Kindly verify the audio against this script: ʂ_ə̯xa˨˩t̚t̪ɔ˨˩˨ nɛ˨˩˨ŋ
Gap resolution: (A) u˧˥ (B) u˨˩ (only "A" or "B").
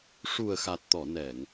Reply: B